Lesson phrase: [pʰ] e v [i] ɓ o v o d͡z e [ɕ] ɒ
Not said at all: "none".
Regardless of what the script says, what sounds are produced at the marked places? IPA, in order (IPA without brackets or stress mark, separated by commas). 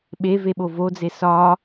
ɓ, e, s